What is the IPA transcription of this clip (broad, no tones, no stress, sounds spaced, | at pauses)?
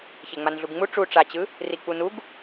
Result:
ç e ŋ͡m a n ɮ u ɡ ŋ͡m u ʈ͡ʂ u ʈ͡ʂ a t͡ɕ ɯ | r i k͡p u n u ɡ